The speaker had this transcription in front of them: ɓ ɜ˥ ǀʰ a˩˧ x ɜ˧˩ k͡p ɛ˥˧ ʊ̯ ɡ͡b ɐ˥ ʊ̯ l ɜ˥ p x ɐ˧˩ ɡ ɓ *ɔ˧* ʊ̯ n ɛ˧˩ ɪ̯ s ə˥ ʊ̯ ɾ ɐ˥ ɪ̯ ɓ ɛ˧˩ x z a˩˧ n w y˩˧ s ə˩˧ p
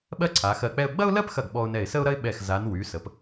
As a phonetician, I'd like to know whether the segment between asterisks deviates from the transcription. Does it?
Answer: no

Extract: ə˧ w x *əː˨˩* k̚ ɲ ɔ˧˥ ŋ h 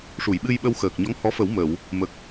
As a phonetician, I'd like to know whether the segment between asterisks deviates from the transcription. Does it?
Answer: no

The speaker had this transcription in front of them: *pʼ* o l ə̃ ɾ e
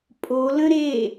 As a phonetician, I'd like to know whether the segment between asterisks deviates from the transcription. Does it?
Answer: no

